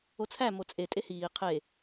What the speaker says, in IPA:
o t͡sʰ æ m o t͡sʼ e tʼ e h iː qʰ e

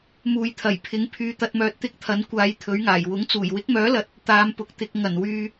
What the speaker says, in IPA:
m uː˨ j t̪ʰ ɐ˨˩ j pʰ ɪ˨˥ ŋ pʰ yː˨ t̪ ɐ˨ t̚ m œː˨ t̚ t̪ ɪ˥ k̚ t̪ʰ ɐ˨˥ n kʷ aː˨˧ j t̪ʰ ɵ˨˥ ɥ ŋ aː˨˩ j w ʊ˨˥ ŋ t͡s uː˨˩ j w ɪ˨˥ k̚ m œː˨˥ l ɐ˨˥ t̚ | t̪ aː˨˧ m p ʊ˨ k̚ t̪ ɪ˨ k̚ ŋ ɐ˨˩ n w yː˧

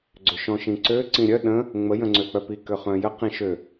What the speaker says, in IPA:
ɡ͡ǀ ʏ ʃ ɔ̃ ʃ ĩ ǀ ø ǀ ĩ ɾʲ œ ɗ ə̃ | ŋ͡m ə j ə̃ ŋ͡ǀ ø k͡p œ p i k ø χ œ̃ j ə q ĩ ʃ ø

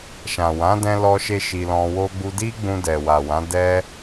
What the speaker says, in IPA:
ʃ ã˨ w ã˨˦ d ɛ̃˧ l ɔ˧ ʃ e˧ ʃ i˧ l ɔ̃˧ w o˦ ɡ͡b u˦ d i˦ ɡ͡b ũ˧ d ɛ˨ w a˨ w ã˨˦ d ɛ˦

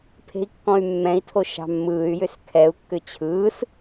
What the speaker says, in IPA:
pʰ e̤ i̯ kː ɔ̃ y̯ mː ɛ̃ i̯ tʰ o ʃ ɑ̤ mː ɯː y̯ j ʏ s kʰ ɛ u̯ kː ʏ t͡ɕʰ ɯː s

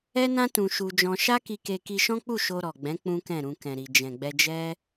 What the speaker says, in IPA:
ɛ˦ n ã˦ t ũ˧ ʃ u˧ d͡ʒ ɔ̃˧ ʃ a˦ k i˧ k e˧ k i˧ ʃ ɔ̃˦ k͡p u˦˨ ʃ o˧ ɾ ɔ˨ ɡ͡b ɛ̃˨˦ k͡p ũ˦ k ɛ̃˦˨ ɾ ũ˧ k ɛ̃˨ ɾ i˨ d͡ʒ ɛ̃˨ ɡ͡b ɛ˧ d͡ʒ ɛ˦

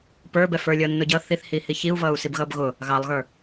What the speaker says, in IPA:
p ə˞ b ɛ f ə˞ lʲ ʌː nː ʊ ɟ ʌ θ i θ h iː h i ç i u̯ v ʌː u̯ s i b ɣ ʌː b ɣ ʊ | ɣ ɑ lˠ ɣ ə˞

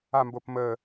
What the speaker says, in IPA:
a m b o p m ə

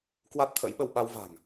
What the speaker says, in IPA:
k w a˦˥ t̚ t̪ʰ ə̰˧˥ j ɓ ə˧ w ɓ a˧ w v a̤˨˩ ŋ

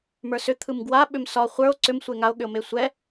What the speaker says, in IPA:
m ə˞ s ʏ t̪ʰ ɯ m ɡ w a ɓ ʏ m s ɒ χʷ ə˞ o̯ ǀ ʏ m sʷ e ŋ a o̯ ɠ ʏ o̯ m e sʷ ɛ

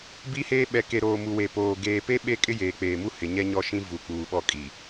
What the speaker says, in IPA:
b i˦ h eː˦ ɓ ɛ˨ k e˨ ɾ oː˨ m u˨ w e˨ p oː˨ ɡ eː˨ p e˦ ɓ e˦ kʼ ɪ˦ j eː˨ k͡p eː˨ m u˦ h ɪ˨ ɲ ɛ˦ ɲ ɔ˦ ʃ ĩ˦ v u˨ k͡p uː˨ ɓ ɔ˦ kʼ i˨

